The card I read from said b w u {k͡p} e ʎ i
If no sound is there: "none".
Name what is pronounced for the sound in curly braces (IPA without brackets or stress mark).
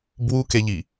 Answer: k